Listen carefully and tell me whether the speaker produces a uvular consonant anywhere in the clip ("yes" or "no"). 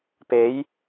no